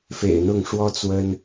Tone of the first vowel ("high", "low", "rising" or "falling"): low